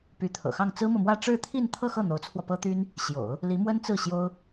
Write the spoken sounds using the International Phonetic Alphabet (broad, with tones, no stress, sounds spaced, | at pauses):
p y˧˥ t̪ʰ ɤ̰˨˩ x ɑ˥˩ ŋ t͡s ɹ̩˥ m ɤ˨ m w ä˥˧ ʈ͡ʂ ɻ̩˥˧ t̪ʰ i˥˧ n t̪ʰ ɤ˥˧ x ɤ˥˩ n̪ o˧˥ ʊ̯ t͡sʰ w ɔ˧ p ɤ˥ t̪ y˥ n | ɕ j o̰˨˩˦ ʊ̯ | l i˧˥ m w ə˥ n t͡s ɹ̩˥˩ ɕ j o˥ ʊ̯